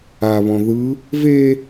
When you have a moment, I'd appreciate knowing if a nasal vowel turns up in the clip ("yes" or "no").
yes